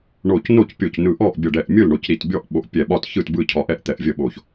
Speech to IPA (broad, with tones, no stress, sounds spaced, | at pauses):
ɳ o˧˩ c n o˥˩ c pʲ o˧˩ c n ɯ˧˩ ʔ ɔ˥˩ ʔ bʲ ə˧˩ ɖ ɛ˧˩ ʔ mʲ ɯ˥˩ l ɳ o˧˩ c ɾ i˧˩ t bʲ ɔ˥˩ ʔ ɓ o˧˩ ʔ pʲ ɛ˧˩ ɓ ɒ˥˩ t ç ɯ˥˩ t b ɯ˥˩ cʰ ɒ˧˩ ʔ ɛ˥˩ ʔ t̪ ɛ˧˩ ʔ vʲ ə˥˩ ɓ o˧˩ ç